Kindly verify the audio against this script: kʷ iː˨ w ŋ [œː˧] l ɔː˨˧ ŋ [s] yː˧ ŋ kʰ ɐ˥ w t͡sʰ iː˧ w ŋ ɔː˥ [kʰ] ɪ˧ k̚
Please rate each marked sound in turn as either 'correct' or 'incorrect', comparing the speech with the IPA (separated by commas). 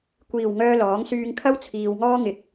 correct, correct, incorrect